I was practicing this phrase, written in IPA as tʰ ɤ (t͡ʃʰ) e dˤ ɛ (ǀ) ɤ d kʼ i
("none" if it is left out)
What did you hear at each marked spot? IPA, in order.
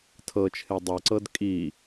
t͡ʃʰ, ǀ

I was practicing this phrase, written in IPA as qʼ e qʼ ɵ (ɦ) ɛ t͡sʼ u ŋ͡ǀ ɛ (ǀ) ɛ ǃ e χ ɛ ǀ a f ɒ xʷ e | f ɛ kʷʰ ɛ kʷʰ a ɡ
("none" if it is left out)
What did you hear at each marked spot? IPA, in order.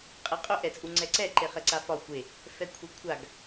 ʔ, ǀ

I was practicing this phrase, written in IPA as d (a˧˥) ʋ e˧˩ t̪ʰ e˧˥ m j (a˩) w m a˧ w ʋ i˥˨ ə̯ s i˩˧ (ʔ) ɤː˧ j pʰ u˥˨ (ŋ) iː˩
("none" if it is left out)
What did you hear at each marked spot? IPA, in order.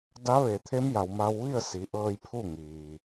a˧˥, a˩, ʔ, ŋ

